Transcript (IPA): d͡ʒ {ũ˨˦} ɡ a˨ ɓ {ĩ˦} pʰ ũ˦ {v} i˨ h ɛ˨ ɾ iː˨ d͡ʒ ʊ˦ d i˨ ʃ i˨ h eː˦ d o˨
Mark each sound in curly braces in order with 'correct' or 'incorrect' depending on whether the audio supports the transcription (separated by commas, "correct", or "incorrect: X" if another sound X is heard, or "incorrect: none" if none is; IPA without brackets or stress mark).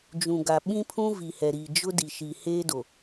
incorrect: ũ˨, correct, correct